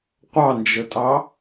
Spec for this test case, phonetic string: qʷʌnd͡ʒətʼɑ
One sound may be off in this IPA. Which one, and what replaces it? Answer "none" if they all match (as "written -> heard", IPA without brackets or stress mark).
ʌ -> ɑ